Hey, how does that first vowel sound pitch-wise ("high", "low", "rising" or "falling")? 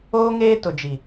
high